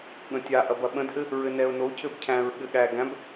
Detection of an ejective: absent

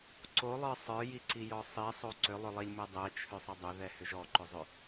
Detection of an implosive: absent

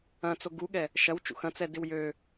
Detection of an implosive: present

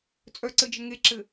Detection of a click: present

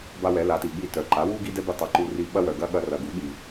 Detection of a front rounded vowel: present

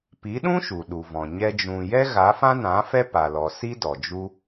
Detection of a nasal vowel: present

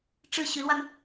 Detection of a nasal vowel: absent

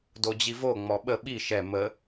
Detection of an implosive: present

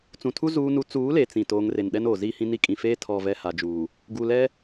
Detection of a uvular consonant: absent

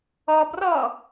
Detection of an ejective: absent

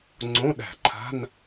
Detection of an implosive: present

